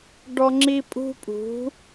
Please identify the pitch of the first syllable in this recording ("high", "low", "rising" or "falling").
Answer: high